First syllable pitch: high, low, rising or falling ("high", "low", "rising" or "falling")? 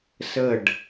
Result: falling